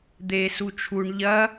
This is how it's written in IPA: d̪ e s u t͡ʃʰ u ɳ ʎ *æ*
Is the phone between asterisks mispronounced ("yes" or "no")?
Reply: yes